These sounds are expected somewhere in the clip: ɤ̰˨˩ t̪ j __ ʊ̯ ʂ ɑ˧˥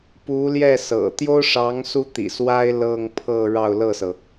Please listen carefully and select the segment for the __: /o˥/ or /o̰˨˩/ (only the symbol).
o˥